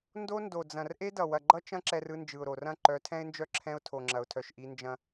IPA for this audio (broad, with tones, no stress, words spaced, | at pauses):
ndo˦ ndo˨d͡zɐ̃˨r ʔe˦dʌ˨ wɐ˨ɡ͡ǃʌ˦t͡ʃɐ̃˦ ǁɛ˦rɯ˦nd͡ʒɯ˨ʊ̯ɾo˨r ɐ̃˦˨ǃœ˨˦tʰɛ̃˦ɪ̯nd͡ʒœ˦ ǁʰɛ̃˦ʊ̯tʰo˨ŋ͡ǁɐ˨ʊ̯tʰœ˨ʃ ʔi˦nd͡ʒɐ̃˦